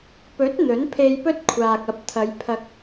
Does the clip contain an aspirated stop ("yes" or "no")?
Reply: yes